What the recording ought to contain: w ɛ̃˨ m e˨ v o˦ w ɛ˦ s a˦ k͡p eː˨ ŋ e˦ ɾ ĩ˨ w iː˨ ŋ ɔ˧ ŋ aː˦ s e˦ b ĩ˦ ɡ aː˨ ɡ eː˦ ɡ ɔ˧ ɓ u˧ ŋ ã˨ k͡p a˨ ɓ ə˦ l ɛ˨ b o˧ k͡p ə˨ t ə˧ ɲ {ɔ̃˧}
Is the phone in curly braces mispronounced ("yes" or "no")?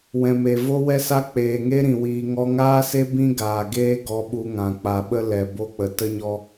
yes